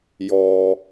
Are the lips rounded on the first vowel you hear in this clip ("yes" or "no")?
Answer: yes